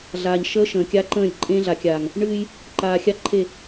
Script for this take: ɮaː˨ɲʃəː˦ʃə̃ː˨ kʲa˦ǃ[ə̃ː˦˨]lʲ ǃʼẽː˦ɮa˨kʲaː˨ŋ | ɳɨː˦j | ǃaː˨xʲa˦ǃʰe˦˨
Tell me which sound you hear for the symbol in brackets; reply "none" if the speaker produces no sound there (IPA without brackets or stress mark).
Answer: ə̃ː˦˨